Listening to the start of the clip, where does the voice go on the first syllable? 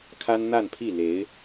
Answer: high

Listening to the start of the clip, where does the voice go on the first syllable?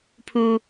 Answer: high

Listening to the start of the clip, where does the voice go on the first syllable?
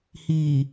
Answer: low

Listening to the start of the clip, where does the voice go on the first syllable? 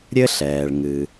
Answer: high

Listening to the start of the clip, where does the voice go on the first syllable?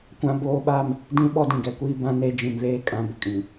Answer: high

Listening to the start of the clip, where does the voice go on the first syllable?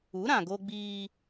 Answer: rising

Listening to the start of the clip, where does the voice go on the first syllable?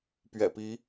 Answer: low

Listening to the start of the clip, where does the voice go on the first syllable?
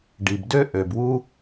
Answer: low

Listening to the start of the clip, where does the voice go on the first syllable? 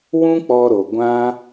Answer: high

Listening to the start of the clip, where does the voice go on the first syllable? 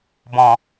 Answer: low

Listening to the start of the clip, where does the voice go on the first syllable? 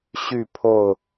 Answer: falling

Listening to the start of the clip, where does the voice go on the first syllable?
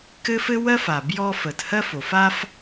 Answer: high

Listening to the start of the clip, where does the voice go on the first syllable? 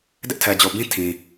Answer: high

